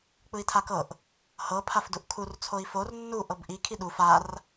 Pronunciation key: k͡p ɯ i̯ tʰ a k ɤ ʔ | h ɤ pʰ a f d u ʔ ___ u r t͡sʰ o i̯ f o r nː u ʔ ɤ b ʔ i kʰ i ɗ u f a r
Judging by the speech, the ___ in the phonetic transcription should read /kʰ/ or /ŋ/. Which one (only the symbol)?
kʰ